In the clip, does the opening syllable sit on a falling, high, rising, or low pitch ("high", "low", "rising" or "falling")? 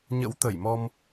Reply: rising